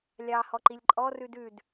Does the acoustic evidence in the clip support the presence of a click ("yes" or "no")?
yes